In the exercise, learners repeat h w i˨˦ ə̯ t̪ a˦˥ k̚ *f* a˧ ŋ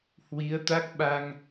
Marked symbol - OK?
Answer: no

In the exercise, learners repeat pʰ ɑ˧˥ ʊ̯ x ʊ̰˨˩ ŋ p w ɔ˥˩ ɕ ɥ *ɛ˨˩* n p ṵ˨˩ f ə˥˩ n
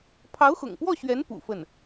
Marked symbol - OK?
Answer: no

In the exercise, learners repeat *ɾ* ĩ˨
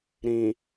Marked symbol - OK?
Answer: yes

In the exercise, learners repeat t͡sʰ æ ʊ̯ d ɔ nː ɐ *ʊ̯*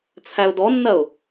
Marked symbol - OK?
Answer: yes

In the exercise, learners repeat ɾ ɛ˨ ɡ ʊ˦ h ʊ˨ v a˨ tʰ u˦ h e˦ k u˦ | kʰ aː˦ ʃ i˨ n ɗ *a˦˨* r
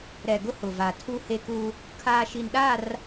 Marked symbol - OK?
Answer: yes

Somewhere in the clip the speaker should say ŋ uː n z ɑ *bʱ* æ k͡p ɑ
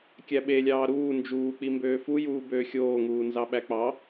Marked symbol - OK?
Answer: no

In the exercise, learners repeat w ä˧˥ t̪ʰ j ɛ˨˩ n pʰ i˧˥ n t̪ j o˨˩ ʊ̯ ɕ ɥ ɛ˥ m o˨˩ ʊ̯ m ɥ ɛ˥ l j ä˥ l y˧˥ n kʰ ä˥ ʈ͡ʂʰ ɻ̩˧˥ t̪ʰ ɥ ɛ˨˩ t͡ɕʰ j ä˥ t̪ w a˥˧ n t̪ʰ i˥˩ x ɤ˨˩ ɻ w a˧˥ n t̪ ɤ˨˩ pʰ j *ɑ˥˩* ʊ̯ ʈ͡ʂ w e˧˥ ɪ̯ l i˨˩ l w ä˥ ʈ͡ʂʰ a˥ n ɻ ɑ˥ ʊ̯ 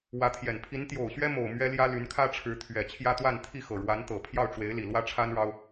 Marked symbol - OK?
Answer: yes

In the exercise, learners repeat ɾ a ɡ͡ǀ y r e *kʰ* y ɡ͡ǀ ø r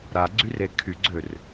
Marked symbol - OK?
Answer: yes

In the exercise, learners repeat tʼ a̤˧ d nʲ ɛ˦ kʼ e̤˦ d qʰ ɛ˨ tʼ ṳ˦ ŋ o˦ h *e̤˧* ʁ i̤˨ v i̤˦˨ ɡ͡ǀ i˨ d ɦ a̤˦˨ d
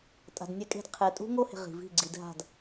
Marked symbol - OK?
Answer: no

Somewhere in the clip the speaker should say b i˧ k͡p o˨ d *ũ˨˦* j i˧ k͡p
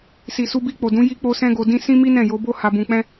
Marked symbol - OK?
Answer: yes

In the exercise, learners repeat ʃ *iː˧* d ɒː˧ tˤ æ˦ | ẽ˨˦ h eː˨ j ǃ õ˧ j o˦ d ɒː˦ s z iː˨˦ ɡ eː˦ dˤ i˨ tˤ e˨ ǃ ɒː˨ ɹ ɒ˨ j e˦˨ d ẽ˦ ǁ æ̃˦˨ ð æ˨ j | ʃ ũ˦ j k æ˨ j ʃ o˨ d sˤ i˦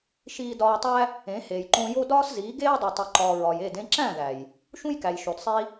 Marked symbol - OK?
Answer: yes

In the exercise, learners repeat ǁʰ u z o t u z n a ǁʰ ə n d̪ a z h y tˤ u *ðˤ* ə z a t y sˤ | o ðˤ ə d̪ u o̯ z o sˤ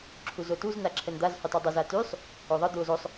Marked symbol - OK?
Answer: no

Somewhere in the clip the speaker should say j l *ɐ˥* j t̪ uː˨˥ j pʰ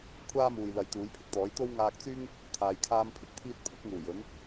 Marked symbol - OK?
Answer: no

